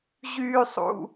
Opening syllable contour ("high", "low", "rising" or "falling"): low